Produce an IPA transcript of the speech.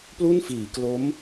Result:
plu˥˩nfiː˩˦klo˦˥m

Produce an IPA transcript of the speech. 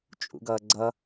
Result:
t͡ʃʼṵɡʌːɡ͡ǀʌ

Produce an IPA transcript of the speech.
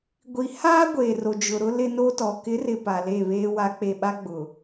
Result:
ɡʷi˨haː˦ ɡʷeː˨ro˨d͡ʒʊ˨ɾʊ˦ lɪ˦no˦tɔ˨ kɪ˨˦rɪ˨ pa˨le˦˨ βeː˦wa˦k͡pe˦˨ ɓa˦ɡ͡bʊ˨

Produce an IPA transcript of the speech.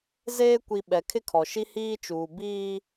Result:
zeː˦ kʷi˨ ɓɛ˨kʰɪ˦kʰɔ˨ʃi˦ hiː˦t͡ʃuː˨ biː˦

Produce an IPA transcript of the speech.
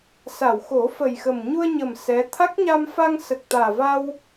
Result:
sa˨˩˨wxo˨˩˦fə˨˩jxə˨˩m ɲu˧ə̯ɲə˨˩m sɛ˧˥ t̪ʰa˦˥k̚ɲa˧mfa˧ŋ sə˨˩k̚t̪aː˨˩va˧w

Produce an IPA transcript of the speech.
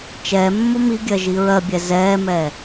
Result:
t͡ʃɛː mːomiɡʲɜ ʒiɹɜbʲɛ zɛːmɛː

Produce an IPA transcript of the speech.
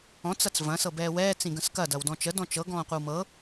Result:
ɔ̃t͡s ɐt͡svɐ̃ sɤbɛːwɛː t͡sĩɡə̃skɐ dɐwdɔ̃t͡ʃə dɔ̃t͡ʃɤ ɡɔ̃ːqʷəwmɤ

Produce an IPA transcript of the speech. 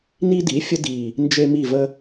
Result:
ni˦di˩˥ fʲə˦di˨˩ | nd͡ʒe˦ mi˦˨və˦

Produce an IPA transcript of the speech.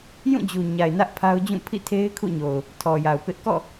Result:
jũ˦˨d͡ʑu˨ɲa˨ɪ̯ nä˦ʔpʰa˦ʊ̯d͡ʑũ˦˨ pʰḭ˦˨tʰe˦ɪ̯ kʰṵ˦˨ɲo˨ʊ̯ | tʰɔ˨ja˨ʊ̯ pɪ˦ʔ kɔ̰˦˨

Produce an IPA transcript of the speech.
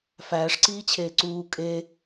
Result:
fæːʂǀiːt͡ɕʰeː ǀuː kʼe

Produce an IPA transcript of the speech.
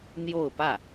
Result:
n̪jo˥˧ʊ̯pä˥˩

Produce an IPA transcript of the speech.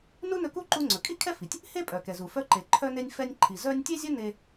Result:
nu˥nɵ˧ku˥ ǃu˧ ŋ͡ǀɵ˩kʼi˥kʰɛ˥fi˩tʲ | he˥pʼœ˩kɛ˩zu˩ fœ˧ǃe˩ǃʰœ˧ ne˧nʲfɛ˧nʲǃʰi˩ zœ˧nʲ tʲe˥zʲɵ˥ ne˧

